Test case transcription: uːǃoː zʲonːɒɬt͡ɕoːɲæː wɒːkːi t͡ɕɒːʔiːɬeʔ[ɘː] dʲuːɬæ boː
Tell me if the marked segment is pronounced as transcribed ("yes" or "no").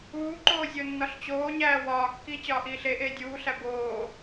no